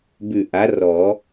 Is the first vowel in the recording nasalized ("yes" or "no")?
no